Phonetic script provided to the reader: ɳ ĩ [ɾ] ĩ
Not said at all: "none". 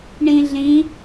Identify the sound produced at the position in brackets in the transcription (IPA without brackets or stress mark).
ɮ